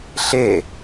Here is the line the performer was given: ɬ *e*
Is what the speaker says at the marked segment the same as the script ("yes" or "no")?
yes